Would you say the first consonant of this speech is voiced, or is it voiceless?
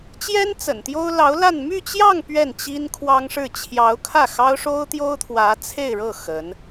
voiceless